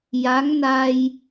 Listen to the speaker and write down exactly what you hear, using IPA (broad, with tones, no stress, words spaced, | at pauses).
ja˧˥ŋna˧j